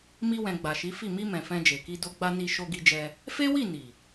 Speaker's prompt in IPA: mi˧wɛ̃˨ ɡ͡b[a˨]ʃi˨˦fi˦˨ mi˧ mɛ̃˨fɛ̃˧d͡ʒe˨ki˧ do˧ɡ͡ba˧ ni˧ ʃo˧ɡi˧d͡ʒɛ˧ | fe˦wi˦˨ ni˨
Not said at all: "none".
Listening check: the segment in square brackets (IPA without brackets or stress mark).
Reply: a˨